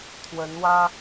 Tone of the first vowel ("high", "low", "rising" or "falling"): rising